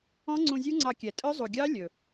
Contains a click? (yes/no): yes